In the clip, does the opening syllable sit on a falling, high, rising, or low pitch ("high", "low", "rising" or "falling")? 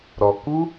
low